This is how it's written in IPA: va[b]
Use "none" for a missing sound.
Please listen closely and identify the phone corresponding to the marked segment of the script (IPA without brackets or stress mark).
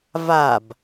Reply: b